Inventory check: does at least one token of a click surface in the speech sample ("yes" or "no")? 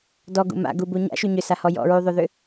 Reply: no